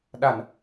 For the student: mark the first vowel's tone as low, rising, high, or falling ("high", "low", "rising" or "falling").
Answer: low